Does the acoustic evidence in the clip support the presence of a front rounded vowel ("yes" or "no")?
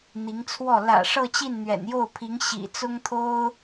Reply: no